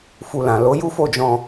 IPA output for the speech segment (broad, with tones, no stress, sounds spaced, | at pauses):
f u˧ l ã˨ l o˨˦ j u˦ f o˦˨ d͡ʒ ɔ̃˧